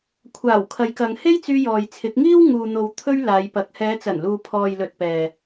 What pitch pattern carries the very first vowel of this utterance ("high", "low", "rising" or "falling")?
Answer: low